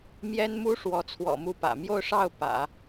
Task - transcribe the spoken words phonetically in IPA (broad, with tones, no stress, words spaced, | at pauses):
mjɛ˥nmu˥ ʂwɔ˧˥t͡sʰwɔ̰˨˩mu˥˩pä̰˨˩ mjo˥˧ʊ̯ʂɑ˥˩ʊ̯ pä̰˨˩˦